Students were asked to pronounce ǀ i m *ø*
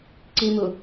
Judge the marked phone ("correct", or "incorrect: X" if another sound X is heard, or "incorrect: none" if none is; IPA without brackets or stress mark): incorrect: u